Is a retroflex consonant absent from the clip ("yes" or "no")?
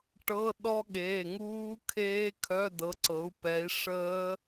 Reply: no